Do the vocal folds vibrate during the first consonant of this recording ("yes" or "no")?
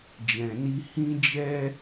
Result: yes